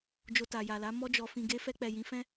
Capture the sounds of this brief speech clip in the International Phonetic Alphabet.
d͡ʒ o˧ t a˨ j a˨ l a˨˦ m ɔ˦ d͡ʒ ɔ˧ f ĩ˧ ɡ e˦ f ɛ˧ k͡p ɛ˨ j ĩ˨˦ f ɛ̃˦

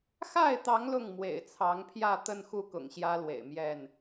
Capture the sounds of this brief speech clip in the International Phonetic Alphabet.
x a˥˨ ɪ̯ t̪ ɑ˨˦ ŋ l ʊ˥˨ ŋ m w ḛ˨˩ ɪ̯ t͡sʰ ɑ˨˦ ŋ pʰ j ä˥˨ t̪ ə˥˨ n x u˥˨ k ʊ̰˨˩ ŋ ɕ j ä˦ l w ḛ˨˩ ɪ̯ m j ɛ˥˨ n

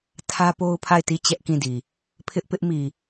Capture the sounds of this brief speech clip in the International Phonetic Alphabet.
tʰ ä˦ p o˦ ʊ̯ pʰ a˦˨ ɪ̯ t i˦˨ t͡ɕ ɛ˦ ʔ k ĩ˦˨ d i˨ | pʰ ɪ˦ ʔ p ɪ˦ ʔ m i˨

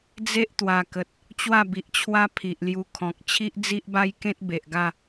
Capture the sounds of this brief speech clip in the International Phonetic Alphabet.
d͡z e˦ ʔ t̪ w a˨˩ k ə˨ t̚ | t͡ɕ w a˥˧ b i˨ ʔ t͡ɕʰ w a˦ pʰ i˨ ʔ l j u˧ kʰ ɔ̃˨ k̚ t͡ɕʰ i˦ ʔ d͡z i˦ ʔ b a˦ j k ẽ˦ t̚ b e˨ ʔ ɡ a˥˧

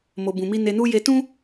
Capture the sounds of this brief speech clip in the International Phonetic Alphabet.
m o˧ b ũ˧ m i˦ n e˧ n u˦ j e˧ t ũ˦

